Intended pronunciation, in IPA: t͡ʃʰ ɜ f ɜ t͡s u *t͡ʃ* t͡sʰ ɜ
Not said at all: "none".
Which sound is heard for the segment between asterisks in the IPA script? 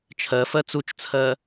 t͡ʃ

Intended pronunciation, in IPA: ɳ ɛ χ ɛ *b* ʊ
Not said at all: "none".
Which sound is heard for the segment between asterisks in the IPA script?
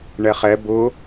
b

